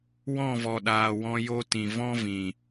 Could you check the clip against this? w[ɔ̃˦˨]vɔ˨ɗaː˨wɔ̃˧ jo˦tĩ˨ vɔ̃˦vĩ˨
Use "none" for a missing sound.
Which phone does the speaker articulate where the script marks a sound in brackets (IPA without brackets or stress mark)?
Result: ɔ̃˦˨